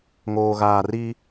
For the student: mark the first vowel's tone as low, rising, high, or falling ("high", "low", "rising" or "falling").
low